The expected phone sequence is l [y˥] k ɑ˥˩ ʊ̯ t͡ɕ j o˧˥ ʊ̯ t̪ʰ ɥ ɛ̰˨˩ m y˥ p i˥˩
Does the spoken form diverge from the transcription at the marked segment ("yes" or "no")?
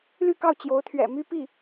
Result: yes